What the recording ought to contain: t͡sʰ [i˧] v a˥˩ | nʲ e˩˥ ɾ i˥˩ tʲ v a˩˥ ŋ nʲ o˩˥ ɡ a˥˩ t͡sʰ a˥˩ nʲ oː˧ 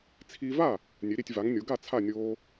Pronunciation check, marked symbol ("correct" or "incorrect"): correct